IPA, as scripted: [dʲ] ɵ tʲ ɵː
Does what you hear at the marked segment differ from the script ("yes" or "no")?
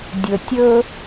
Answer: no